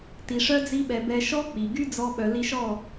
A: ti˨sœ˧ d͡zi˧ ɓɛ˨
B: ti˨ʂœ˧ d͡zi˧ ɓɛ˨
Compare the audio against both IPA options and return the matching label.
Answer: B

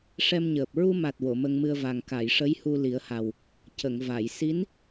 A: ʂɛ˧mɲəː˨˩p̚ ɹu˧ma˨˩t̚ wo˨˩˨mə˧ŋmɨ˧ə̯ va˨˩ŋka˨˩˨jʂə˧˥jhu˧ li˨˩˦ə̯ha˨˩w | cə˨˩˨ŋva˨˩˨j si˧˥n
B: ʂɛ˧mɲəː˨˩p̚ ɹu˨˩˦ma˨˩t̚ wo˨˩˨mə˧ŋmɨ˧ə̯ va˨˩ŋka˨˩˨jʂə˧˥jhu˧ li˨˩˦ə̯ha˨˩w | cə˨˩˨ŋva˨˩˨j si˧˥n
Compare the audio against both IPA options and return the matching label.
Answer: A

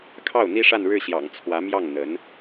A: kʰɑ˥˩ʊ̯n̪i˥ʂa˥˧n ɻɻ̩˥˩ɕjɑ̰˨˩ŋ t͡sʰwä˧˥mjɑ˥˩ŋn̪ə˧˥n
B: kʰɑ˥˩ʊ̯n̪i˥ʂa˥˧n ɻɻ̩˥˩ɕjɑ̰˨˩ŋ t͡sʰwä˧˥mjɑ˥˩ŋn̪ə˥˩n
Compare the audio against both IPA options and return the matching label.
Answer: A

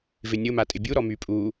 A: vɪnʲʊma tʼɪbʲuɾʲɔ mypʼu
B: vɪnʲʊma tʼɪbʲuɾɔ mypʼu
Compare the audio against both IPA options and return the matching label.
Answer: B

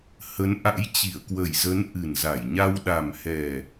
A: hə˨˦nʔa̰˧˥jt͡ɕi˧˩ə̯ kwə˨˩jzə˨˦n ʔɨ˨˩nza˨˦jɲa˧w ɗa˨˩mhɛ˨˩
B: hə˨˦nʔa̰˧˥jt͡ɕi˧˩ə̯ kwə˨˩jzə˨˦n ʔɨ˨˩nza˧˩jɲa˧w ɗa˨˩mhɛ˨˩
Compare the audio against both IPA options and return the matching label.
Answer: B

